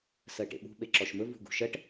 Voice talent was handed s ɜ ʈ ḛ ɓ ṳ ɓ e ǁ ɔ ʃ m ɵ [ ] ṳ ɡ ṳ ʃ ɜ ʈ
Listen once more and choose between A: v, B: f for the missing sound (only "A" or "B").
A